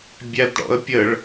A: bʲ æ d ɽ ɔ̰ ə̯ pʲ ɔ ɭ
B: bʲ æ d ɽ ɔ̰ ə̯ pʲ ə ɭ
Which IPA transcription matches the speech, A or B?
B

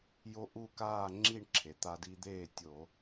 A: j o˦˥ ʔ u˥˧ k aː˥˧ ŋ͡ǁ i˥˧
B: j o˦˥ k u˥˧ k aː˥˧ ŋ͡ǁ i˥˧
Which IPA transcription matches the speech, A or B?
A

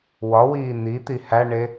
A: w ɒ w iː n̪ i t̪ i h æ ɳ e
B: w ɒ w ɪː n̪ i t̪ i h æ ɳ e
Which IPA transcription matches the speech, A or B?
A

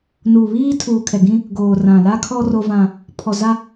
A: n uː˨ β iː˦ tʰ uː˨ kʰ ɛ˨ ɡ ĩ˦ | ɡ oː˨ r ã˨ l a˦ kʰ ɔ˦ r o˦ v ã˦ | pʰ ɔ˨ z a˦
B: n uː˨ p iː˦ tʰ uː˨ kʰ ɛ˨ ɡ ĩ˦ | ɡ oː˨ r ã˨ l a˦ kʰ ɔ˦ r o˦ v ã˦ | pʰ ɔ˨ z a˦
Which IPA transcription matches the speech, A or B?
A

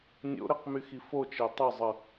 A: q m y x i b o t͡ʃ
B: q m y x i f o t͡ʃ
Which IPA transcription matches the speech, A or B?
B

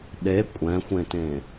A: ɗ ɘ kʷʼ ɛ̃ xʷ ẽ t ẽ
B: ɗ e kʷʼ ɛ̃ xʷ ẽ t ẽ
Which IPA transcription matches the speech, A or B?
B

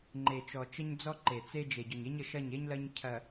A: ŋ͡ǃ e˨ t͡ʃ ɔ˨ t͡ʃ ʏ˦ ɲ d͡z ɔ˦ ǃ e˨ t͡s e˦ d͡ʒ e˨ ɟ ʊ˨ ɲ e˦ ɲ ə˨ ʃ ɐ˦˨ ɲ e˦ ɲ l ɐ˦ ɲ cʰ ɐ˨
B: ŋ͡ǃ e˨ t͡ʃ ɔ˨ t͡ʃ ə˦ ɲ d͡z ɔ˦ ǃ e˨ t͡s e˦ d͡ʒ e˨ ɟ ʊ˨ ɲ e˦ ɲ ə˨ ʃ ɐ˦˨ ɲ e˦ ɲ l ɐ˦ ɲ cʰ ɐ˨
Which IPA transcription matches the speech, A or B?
B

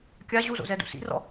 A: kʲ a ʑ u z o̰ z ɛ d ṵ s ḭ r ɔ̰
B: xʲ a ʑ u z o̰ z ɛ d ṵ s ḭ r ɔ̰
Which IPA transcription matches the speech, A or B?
A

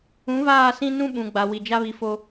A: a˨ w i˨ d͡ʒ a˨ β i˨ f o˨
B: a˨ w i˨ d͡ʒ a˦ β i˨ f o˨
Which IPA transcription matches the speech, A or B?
B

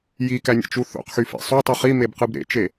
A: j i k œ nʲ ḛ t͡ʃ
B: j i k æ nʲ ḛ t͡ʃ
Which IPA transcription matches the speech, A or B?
B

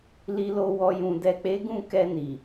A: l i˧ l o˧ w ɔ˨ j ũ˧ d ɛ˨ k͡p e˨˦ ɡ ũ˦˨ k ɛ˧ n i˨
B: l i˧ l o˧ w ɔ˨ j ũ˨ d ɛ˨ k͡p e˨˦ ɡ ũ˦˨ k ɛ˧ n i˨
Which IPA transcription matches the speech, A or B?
B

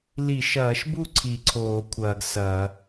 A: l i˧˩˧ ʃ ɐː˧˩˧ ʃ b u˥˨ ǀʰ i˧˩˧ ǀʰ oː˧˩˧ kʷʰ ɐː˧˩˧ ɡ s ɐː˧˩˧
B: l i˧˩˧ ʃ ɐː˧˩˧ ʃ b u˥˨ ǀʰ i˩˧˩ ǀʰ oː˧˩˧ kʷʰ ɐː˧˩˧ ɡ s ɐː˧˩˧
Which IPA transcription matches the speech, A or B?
A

